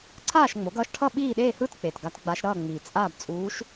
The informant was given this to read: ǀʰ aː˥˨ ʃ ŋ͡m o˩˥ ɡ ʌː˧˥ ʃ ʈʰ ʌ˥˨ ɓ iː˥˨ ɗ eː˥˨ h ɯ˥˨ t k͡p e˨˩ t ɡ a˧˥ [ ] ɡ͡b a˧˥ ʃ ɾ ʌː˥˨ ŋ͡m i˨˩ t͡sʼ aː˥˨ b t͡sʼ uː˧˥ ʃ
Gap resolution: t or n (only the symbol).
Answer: t